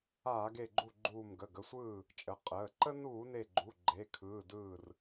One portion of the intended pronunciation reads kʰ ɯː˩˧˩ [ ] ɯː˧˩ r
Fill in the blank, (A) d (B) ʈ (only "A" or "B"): A